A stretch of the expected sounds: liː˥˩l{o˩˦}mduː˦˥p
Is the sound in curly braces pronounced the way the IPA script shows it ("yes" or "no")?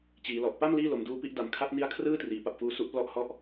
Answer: yes